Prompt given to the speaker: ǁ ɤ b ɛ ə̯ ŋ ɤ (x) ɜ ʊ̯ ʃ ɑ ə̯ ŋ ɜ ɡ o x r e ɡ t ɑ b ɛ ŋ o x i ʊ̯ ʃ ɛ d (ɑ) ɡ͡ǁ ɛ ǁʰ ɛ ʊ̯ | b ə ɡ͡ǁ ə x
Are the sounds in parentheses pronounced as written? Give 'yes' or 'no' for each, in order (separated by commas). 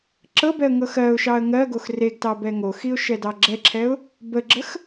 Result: yes, yes